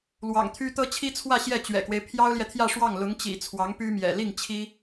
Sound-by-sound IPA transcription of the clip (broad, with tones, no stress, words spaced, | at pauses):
lwɑ̰˨˩ŋt̪ʰy˥ t̪ɤ˥t͡ɕʰi˥t͡sʰwä˥˧ ɕjɛ˥˩t͡ɕɥɛ̰˨˩kwe˦ɪ̯ pʰjɑ˥ʊ̯ljɛ˨t̪ʰjä˥˧ʂwɑ˥˩ŋ lʊ˧˥ŋt͡ɕḭ˨˩ t͡sʰwɑ˧˥ŋpy˥mjɛ̰˨˩ li˥˩ŋ t͡ɕʰi˥